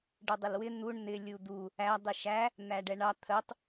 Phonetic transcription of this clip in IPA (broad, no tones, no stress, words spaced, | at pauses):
ɖədˤɪlwɪ n̪uɳ n̪ɪlʲu d̪u | æ dˤiʃæ | n̪æɖɛɳɑ t̪ʰətˤ